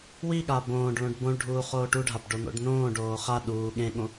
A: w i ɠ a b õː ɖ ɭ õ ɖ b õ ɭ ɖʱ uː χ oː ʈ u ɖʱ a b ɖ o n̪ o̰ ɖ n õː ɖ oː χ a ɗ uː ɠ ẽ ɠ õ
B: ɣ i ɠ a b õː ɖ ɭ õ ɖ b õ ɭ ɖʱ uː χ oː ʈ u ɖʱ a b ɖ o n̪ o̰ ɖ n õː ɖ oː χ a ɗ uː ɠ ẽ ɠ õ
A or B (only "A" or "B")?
A